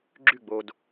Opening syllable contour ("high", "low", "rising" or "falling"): falling